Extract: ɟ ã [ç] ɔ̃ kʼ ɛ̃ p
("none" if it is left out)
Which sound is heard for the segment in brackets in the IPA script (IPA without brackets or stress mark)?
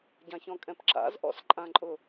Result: ç